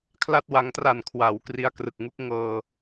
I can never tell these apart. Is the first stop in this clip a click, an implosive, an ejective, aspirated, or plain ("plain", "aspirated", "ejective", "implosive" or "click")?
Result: aspirated